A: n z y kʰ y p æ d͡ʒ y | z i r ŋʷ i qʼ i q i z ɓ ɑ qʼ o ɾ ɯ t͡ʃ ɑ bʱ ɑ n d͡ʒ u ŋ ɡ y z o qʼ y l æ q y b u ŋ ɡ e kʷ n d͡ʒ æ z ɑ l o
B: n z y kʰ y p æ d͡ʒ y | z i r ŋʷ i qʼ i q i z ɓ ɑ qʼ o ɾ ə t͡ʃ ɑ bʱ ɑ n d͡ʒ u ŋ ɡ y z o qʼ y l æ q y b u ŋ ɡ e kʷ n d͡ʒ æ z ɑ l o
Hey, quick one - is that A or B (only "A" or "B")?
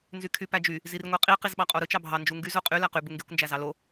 A